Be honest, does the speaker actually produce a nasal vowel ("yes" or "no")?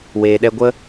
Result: no